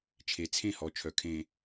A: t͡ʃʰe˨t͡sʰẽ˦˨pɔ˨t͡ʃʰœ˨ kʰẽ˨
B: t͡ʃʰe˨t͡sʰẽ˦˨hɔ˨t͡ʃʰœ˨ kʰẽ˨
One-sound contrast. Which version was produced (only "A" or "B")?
B